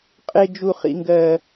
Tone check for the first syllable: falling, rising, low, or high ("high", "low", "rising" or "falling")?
high